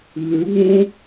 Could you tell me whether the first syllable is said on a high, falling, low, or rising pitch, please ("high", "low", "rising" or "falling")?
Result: rising